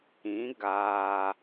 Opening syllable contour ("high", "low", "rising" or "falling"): rising